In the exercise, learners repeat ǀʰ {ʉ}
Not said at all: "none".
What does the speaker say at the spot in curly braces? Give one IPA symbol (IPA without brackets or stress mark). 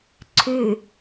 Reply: ʉ